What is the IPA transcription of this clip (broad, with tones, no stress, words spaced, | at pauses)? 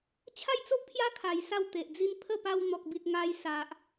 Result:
t͡ɕʰa˥˧jt͡so˦ʔpʰja˦ kʰa˧jsa˥˧wt̪e˨ʔd͡zi˦n pʰə˥˧pa˧w n̪ɔ˨k̚bi˨t̚ ŋa˧jsa˨ʔ